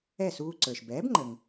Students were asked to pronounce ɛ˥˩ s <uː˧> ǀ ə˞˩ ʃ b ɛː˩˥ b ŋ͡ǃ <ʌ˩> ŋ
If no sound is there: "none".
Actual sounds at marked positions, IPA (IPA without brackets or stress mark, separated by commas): uː˧, ə˩